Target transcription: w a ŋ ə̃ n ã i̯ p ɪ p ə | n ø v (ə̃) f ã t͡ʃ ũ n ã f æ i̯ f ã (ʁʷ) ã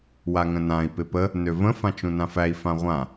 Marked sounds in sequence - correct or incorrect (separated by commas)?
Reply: correct, correct